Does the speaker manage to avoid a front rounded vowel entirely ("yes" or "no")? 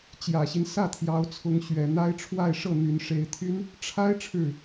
no